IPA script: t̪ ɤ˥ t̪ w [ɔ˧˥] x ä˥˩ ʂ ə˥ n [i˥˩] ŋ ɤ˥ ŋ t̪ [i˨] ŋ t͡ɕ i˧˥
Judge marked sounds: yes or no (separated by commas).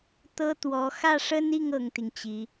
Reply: yes, yes, yes